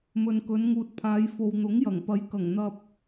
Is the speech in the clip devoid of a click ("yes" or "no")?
yes